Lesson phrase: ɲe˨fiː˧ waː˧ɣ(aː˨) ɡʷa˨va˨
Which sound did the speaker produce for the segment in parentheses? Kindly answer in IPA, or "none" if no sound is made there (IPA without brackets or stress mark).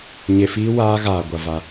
aː˨